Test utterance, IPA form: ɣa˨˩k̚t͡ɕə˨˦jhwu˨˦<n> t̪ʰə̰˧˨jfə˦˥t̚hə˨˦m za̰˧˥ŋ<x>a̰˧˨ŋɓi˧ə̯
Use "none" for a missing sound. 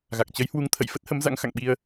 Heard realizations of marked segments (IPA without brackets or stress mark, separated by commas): ŋ, x